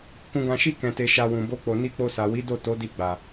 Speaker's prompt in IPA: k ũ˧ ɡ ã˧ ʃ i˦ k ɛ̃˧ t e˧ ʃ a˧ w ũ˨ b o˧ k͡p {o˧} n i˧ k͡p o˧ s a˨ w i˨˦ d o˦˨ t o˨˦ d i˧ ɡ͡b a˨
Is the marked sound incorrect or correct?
incorrect